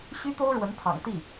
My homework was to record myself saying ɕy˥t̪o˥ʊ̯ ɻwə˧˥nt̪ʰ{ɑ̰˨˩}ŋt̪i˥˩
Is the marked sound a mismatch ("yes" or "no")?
no